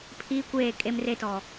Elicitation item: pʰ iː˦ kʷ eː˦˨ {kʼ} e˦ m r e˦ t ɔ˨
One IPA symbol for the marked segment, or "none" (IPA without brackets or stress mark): kʼ